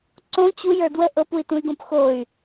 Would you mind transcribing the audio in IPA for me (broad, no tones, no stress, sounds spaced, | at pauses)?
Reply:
ǀ õ t͡ɕ u j ə˞ d w ə ʔ ɤ p u i̯ t ũ y̯ ɡ õ p x o y̯